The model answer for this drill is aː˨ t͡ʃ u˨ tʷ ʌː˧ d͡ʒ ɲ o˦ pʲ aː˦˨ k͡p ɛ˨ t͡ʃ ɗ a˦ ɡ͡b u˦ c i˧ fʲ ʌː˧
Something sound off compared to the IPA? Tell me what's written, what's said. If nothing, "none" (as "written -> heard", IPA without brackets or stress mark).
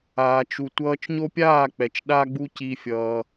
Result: d͡ʒ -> t͡ʃ